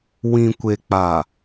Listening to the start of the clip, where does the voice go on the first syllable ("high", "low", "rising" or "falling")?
low